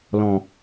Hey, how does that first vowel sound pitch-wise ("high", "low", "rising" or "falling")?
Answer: low